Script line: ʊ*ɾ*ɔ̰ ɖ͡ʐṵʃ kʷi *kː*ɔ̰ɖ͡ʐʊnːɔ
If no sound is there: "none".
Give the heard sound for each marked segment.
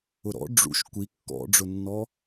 ɾ, kː

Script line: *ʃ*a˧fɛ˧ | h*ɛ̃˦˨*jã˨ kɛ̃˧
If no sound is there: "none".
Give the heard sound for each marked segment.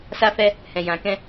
s, ɛ̃˨

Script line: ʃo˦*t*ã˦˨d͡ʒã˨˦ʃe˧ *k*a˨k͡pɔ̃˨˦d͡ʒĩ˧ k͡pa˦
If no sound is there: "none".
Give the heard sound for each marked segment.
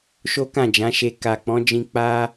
k, k

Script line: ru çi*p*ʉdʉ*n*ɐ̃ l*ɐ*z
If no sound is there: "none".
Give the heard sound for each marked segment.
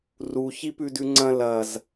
p, ŋ͡ǀ, ɐ

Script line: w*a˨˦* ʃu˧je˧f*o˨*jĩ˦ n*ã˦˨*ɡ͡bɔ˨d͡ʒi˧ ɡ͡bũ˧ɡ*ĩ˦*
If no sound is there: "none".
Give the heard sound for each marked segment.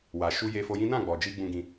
a˨, o˧, ã˦˨, ĩ˧

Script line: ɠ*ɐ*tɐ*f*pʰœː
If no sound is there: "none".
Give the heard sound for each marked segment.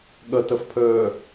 ɐ, f

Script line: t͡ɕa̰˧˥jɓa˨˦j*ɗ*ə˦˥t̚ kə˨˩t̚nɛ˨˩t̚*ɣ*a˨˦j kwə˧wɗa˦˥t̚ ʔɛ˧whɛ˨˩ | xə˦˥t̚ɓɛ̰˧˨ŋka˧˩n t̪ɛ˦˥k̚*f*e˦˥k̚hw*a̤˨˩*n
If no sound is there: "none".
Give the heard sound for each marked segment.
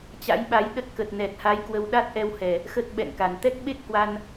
ɗ, h, ɓ, a˧

